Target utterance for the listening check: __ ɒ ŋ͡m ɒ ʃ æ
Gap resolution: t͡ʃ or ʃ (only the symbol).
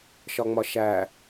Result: ʃ